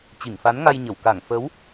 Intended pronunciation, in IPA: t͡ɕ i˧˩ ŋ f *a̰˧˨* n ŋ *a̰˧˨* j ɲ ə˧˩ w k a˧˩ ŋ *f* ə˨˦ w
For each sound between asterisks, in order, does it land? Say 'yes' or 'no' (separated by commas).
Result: no, no, yes